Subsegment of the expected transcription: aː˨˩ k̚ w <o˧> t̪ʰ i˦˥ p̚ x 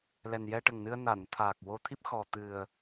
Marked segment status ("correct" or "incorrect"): correct